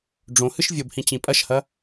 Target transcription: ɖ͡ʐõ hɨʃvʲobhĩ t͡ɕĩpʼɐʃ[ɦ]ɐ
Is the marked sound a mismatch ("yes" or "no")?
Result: yes